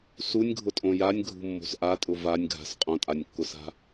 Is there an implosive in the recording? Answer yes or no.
no